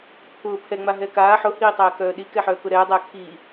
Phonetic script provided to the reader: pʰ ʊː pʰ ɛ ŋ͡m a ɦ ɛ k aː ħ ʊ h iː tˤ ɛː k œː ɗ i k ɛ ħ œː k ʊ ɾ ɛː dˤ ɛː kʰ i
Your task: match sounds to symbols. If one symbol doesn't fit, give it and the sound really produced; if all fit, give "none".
none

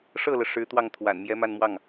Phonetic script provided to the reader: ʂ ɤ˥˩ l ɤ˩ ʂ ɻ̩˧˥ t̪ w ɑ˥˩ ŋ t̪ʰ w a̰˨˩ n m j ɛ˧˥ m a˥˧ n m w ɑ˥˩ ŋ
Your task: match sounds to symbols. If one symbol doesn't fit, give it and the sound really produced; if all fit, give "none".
none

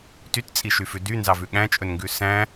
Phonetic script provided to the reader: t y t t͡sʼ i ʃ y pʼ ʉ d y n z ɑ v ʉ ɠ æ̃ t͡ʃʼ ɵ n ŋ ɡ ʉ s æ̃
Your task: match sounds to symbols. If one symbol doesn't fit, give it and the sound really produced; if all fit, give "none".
pʼ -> f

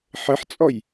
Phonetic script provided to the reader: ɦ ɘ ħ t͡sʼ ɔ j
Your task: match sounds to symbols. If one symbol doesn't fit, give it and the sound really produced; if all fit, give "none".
ɦ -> ħ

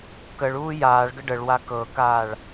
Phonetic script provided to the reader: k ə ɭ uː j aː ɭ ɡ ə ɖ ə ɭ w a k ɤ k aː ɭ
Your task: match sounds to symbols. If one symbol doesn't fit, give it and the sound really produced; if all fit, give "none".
none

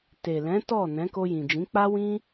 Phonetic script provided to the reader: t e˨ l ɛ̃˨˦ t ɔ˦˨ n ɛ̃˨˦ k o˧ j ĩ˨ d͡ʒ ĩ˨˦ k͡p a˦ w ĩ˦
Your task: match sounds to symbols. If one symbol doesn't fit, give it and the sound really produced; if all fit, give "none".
none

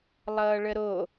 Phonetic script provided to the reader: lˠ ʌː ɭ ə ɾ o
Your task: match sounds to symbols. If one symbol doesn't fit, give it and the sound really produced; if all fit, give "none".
none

